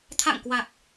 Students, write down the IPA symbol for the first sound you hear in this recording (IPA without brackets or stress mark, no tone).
t̪ʰ